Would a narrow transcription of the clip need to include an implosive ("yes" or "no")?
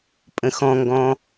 no